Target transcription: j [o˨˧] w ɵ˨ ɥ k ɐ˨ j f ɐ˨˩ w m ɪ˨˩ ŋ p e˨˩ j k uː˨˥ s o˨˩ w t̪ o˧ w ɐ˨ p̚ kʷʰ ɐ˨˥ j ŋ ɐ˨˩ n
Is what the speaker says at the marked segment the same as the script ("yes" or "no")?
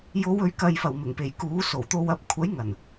yes